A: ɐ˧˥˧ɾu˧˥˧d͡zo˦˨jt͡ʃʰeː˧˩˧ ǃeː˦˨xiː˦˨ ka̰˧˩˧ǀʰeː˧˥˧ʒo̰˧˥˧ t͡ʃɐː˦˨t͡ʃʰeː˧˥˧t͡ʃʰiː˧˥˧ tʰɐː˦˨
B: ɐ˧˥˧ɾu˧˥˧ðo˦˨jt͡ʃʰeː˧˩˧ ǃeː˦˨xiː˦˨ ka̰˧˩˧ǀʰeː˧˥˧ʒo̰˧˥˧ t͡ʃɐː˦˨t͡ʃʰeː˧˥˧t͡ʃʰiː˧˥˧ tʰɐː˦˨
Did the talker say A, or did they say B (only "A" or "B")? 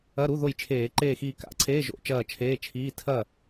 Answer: B